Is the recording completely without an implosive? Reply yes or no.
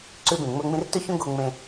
yes